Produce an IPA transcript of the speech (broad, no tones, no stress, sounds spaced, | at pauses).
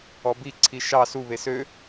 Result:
ɔ b i ǀʰ i ʃ ɑ s u β e s ø